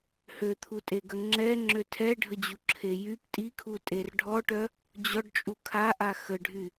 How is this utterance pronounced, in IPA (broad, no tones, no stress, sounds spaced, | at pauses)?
h ø t̪ʰ u tʼ e ɡ ə ŋ͡ǁ ɛ ŋ͡ǁ ø tʰ ɛ ɖʱ ə d͡ʑ u ǁʰ e j y p tʼ i kʰ u tʼ e r ɖʱ ɔ ʈ œ | d͡ʑ ɔ ɖ t͡ʃʼ u kʰ a ʔ a x ə ɖʱ y